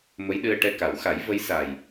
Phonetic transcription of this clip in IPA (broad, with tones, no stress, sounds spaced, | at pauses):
m ə˧˥ j ɗ ɨ˧ ə̯ ʈ ɛ˧ k a˨˩˦ w x a˨˩˦ j v ə˧˥ j s a˨˩ j